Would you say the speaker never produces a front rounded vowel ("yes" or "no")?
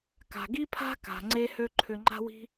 no